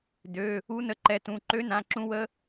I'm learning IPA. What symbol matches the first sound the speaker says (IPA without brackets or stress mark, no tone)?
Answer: d